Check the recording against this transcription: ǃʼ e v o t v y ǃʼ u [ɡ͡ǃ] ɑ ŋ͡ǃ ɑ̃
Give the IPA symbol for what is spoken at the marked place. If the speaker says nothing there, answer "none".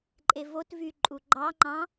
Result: ɡ͡ǃ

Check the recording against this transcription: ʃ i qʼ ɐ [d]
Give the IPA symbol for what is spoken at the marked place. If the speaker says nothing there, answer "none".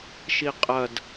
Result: d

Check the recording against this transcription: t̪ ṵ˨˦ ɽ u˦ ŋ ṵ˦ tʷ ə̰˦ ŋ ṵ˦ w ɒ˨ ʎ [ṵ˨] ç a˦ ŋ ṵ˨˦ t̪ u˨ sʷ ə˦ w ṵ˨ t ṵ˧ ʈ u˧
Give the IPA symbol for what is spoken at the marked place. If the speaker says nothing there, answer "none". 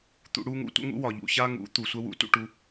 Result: ṵ˨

